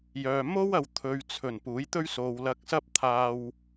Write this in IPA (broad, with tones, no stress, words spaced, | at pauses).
jœː˨mo˥wɐ˨w t̪ʰɵ˨ɥt͡sʰɵ˨˩n puː˨˥jt̪ɵ˥ɥ so˨wlɐ˧k̚ sɐ˥p̚t̪ʰaː˧w